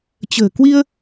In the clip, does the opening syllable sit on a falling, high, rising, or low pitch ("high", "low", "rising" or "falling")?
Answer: low